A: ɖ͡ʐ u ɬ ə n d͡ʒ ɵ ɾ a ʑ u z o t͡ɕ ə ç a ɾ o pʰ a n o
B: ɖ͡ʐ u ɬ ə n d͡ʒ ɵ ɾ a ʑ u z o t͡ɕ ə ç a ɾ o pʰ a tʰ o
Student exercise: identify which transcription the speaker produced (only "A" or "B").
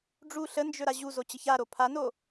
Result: A